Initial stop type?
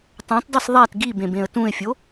plain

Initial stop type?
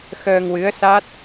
plain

